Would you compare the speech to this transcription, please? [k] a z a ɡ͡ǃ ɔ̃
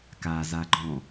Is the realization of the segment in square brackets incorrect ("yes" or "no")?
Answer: no